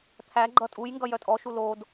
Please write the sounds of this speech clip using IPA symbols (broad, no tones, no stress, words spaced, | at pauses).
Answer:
t̪ʰæ ɡ͡ǃʌtʼujŋɡʌ jœtʼɔʃu lod